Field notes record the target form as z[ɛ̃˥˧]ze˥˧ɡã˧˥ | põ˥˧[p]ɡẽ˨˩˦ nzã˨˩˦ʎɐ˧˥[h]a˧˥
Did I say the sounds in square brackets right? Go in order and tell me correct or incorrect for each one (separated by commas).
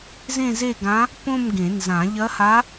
incorrect, incorrect, correct